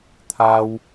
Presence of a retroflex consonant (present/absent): absent